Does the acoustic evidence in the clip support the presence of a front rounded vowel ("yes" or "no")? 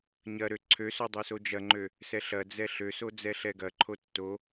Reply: yes